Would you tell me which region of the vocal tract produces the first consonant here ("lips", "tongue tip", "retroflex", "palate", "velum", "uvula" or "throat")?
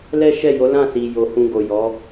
tongue tip